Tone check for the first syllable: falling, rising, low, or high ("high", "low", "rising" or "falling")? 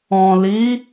low